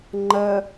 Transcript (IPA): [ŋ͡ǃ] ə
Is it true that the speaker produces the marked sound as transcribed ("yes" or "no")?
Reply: yes